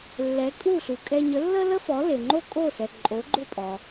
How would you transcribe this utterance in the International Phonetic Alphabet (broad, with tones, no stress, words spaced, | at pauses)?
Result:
lːɛ˩˥kʼu˥˩ɬu˩kʼɛ˧ ɲə˩˥lːə˥lə˥fɔ˩˥ le˩ŋ͡ǃo˥˩kʼo˥˩sɛ˩ ǃʼo˩˥ɡ͡ǃʊ˥˩pʼɔ˩